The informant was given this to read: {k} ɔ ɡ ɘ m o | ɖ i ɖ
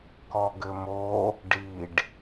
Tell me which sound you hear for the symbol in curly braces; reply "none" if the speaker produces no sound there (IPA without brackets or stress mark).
k